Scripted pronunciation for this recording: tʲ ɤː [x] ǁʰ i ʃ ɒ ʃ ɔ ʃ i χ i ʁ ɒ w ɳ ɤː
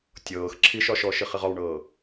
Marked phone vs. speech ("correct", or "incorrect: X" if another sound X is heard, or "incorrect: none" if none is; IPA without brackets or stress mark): correct